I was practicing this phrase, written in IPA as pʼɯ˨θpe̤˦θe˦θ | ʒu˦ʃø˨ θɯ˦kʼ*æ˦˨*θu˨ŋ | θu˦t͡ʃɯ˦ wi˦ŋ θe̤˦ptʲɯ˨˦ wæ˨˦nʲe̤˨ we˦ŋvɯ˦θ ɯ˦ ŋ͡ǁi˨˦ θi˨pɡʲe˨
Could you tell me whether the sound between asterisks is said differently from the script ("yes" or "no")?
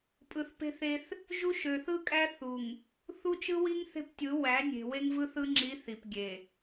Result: yes